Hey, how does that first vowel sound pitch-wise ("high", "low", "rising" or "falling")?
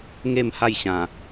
falling